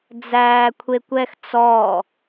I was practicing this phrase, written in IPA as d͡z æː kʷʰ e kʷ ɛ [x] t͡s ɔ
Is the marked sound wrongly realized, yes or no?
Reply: no